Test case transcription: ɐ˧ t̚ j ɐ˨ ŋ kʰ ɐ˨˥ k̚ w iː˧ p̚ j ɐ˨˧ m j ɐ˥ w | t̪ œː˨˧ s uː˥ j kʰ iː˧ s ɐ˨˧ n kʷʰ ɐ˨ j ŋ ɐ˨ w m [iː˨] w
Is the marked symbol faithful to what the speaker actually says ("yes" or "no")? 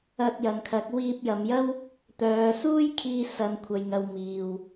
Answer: yes